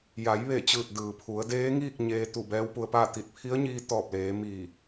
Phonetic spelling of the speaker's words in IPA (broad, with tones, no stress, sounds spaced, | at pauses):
j a˩˧ j ʋ e˧˩ t͡ɕ ɯː˧˩ t̚ d ɯː˩ pʰ u˩˧ ə̯ d eː˧˥ ŋ iː˥˨ k̚ ɲ eː˧ t̪ u˧˩ b ɛː˧˥ w p u˧ ə̯ p aː˥˨ t̪ i˧˩ t̚ pʰ i˧˥ ə̯ ɲ iː˧ t̪ ɔː˧˩ p̚ l eː˩˧ m iː˧˩